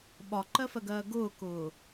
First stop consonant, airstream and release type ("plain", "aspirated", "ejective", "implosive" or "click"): implosive